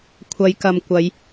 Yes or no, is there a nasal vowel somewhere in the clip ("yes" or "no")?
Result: no